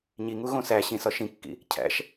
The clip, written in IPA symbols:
ɲiŋuɣõ sæ ɕĩsɒ ʃĩkːḭ | cʰæ̰ʃ

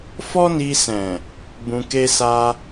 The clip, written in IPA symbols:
fɔ˦ni˧sɛ̃˨ | bũ˧ke˦sa˦

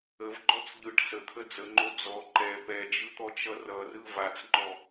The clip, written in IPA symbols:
əvɡ͡ǃɔt͡s ʎɯʈ sət̪ʰə d͡zəŋ͡ǃo d͡zɔ ǃɛ pɛd͡ʒɯt̪ɔt͡ʃʌ rʌrɯ vat͡sŋ͡ǃɔ

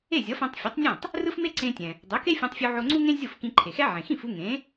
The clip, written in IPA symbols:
e˥˩zʲʌ˩˥fɛ̃˧tˤ fʲɯ˩˥tˤnʲã˥˩tˤ | rɯ˥fme˥ǀẽ˧tʲɛ̃˩ | dˤo˩˥ke˥fʲã˧tˤ fʲu˧ʕo˧ŋ͡ǀu˥ŋẽ˥ zʲo˥˩fkĩ˧ǃʰe˩xɛ˥ ʕẽ˩xĩ˥˩fu˧ ŋẽ˩˥

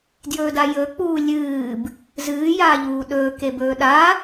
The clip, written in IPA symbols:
djɵːdajɵ k͡puːlʲɨːb | zɨː jaːʎuːɗɵː kebɵːɗa

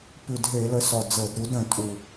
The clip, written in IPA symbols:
pʉ˨˩dɦe˧˩˧lə˩˥s ɔ˨˩d͡zɤ˧˩˧dɾu˩˥d ɾə̃˨˩ tʼu˨˩

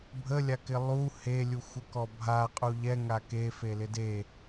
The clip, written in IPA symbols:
bʱəlʲakɪ lˠu helʲuxʷəkɔ bʱaqʼu ʎɛŋa kefelɪ de

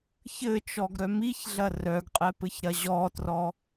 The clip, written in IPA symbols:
çɘt͡ʃɔɡɾœ miçɮɐ rœɡqʼɛpɘçɾɐ ʑɔtrɔ

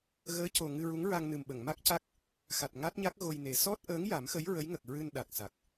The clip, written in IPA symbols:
ɣəː˧˥co˨˩ ŋɨ˧ ɹu˧˥ŋɹa˧ŋ nɨ˨˩mɓə˨˩˨ŋma˦˥k̚ca˦˥k̚ | xa˨˩t̚ŋa˦˥t̚ɲa˦˥k̚ ɣo˧jne˨˩˦ sɔ˦˥t̚ʔəː˧˥ŋ ja˨˩˦mxə˧˥j ɹə˧˥jŋə˨˩k̚ ɹɨ˧nɗa˨˩k̚sa˨˩k̚

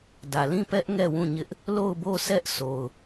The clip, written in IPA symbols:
dä˨lĩ˦˨pɛ˦ʔ ŋɛ˦˨wũ˦˨ɲɪ˦ʔ | lo˦˨ʊ̯bo˦˨sɛ˦ʔ so˨ʊ̯

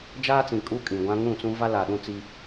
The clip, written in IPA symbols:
d͡ʒaː˦t͡sĩ˨ kʼu˦kʼĩ˨ɡʷã˦ ŋũ˦˨t͡sũ˦va˦ la˨ɗũ˦t͡si˦

